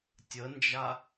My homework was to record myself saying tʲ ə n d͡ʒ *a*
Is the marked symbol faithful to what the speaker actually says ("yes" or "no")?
yes